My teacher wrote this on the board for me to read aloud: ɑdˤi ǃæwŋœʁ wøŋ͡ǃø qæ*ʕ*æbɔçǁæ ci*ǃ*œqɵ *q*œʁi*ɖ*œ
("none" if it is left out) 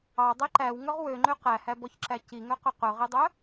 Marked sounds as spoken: h, ŋ, q, dˤ

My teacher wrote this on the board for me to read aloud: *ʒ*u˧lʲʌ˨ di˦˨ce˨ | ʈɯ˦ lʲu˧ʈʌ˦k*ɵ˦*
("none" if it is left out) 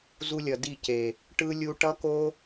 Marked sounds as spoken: z, o˦

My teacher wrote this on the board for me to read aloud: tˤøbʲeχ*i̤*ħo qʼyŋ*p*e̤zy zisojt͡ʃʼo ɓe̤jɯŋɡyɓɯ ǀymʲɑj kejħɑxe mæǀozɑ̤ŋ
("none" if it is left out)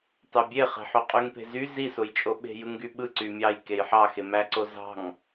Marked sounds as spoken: e̤, p

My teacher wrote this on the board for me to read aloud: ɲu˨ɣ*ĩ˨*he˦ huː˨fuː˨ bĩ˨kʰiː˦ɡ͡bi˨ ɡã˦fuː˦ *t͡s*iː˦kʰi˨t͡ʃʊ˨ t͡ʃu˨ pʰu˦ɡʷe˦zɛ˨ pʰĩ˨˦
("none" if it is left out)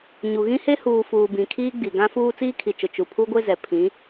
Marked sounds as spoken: ĩ˦, t͡s

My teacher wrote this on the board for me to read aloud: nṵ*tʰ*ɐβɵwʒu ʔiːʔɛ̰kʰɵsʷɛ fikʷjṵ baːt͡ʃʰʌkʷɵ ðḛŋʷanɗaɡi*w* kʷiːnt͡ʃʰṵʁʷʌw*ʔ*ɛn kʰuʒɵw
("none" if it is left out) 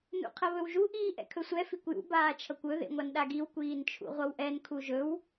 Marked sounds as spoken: qʰ, w, ʔ

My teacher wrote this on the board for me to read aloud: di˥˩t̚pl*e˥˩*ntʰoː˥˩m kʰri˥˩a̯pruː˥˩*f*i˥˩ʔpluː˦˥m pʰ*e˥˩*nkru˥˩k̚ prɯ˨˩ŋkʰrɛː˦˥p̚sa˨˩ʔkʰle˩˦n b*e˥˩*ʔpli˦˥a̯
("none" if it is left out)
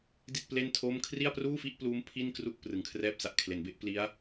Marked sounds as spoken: e˥˩, f, i˥˩, e˥˩

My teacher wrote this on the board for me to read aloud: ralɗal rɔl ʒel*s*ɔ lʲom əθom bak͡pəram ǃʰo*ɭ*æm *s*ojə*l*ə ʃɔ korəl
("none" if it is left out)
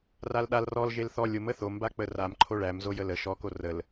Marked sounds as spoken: θ, ɭ, z, l

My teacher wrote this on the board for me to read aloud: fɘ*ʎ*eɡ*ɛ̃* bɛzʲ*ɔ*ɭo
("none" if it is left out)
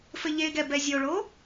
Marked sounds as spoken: ʎ, ɛ, o

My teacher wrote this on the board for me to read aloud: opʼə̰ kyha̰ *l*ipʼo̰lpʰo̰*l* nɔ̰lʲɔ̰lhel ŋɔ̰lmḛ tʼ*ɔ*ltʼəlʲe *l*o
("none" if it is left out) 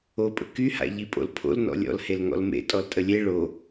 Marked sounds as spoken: ʎ, l, ɔ, ɭ

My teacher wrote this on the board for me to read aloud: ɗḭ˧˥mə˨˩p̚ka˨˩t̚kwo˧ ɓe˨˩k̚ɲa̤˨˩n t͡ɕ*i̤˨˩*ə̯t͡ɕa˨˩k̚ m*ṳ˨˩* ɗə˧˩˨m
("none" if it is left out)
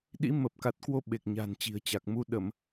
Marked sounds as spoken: i̤˨˩, u˧

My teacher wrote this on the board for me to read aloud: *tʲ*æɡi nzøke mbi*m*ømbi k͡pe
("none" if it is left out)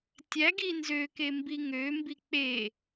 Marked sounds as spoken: tʲ, ŋ

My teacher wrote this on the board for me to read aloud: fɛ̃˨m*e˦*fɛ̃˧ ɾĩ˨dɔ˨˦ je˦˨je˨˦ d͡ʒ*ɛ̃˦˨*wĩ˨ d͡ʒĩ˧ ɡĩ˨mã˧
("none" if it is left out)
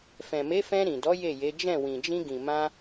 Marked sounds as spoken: e˨˦, ɛ̃˦˨

